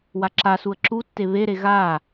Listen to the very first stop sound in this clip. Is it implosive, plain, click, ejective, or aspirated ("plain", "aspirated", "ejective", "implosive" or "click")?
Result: click